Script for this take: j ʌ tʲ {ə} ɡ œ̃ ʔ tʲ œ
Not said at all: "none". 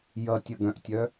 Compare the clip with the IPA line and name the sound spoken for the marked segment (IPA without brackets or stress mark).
ə